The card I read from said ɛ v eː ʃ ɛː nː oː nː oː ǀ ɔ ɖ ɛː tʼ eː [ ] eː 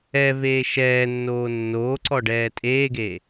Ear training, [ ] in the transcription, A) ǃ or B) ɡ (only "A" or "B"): B